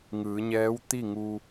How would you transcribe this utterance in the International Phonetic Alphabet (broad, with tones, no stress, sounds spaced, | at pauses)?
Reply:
ŋ ɯː˩˧ ɲ ɛː˧˥ w t̪ i˥˨ ŋ u˧